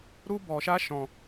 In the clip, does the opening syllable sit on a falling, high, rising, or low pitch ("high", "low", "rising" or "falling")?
high